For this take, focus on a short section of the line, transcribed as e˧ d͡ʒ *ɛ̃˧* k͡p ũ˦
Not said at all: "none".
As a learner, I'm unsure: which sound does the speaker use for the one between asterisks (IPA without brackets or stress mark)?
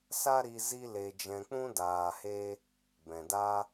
ɛ̃˧